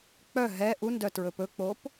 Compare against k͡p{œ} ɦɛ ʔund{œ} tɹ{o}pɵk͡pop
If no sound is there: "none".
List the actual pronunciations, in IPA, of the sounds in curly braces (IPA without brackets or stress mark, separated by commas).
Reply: œ, œ, ɵ